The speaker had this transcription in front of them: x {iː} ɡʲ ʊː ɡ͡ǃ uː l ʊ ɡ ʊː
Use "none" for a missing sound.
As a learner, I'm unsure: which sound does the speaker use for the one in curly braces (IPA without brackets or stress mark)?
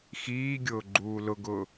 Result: iː